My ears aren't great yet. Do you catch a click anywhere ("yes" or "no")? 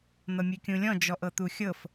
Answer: no